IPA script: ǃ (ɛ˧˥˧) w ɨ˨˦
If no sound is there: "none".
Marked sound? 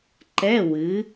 ɛ˧˥˧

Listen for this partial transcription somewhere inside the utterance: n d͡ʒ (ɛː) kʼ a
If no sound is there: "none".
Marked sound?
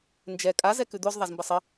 ɛ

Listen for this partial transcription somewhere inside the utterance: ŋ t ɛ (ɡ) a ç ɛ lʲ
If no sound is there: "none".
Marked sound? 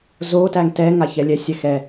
ŋ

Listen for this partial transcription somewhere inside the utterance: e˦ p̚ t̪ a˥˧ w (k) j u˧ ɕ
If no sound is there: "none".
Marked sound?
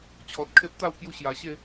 k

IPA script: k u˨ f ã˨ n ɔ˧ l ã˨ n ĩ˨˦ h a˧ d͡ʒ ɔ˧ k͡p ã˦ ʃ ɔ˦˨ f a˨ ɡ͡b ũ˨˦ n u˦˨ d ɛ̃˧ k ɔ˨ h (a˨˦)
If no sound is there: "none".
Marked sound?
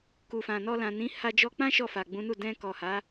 a˨˦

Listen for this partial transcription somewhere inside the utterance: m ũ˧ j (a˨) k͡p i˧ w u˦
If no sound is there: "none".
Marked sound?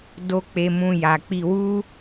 a˨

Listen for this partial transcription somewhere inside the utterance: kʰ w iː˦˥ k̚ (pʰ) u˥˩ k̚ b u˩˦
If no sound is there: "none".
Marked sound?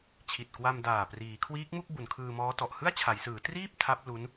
m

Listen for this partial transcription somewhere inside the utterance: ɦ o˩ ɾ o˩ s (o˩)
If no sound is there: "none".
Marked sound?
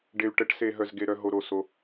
o˩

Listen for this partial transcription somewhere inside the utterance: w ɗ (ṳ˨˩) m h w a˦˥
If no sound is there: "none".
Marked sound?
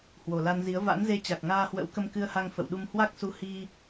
u˧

